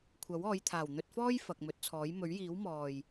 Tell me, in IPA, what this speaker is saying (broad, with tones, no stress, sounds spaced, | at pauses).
kʷʰ ɐ˨˥ w ɔː˨˧ j t̪ʰ aː˨˩ w n̪ ɵ˧ t̚ f ɔː˥ j f ɐ˨ k̚ m ɵ˨˥ t̚ t͡sʰ ɔː˨˥ j m ɵ˨˥ ɥ j iː˨˥ w m ɔː˨˩ j